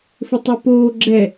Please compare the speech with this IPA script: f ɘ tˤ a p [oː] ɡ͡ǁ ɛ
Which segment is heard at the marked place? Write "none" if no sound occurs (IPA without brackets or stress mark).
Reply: oː